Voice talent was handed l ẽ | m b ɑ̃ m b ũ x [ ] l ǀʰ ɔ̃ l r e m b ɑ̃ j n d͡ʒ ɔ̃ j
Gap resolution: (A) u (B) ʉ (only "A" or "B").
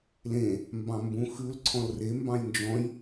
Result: B